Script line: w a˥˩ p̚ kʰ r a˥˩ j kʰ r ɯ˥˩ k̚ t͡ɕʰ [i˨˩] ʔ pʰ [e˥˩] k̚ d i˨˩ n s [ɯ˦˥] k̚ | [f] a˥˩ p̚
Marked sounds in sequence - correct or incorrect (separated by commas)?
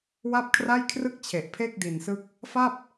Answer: incorrect, correct, correct, correct